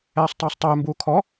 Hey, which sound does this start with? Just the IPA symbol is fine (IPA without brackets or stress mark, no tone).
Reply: ɛː